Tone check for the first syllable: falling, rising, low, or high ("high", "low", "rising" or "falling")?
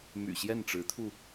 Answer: low